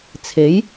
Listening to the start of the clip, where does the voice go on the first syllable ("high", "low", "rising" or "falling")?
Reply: rising